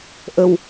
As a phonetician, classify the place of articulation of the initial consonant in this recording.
glottal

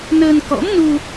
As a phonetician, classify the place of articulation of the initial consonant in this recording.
alveolar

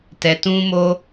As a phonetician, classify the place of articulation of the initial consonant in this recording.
alveolar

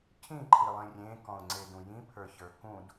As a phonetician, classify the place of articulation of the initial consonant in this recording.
palatal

